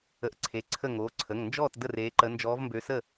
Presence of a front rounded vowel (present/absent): present